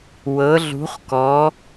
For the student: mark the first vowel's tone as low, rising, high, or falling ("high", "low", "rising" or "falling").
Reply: rising